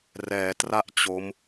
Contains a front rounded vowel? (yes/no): no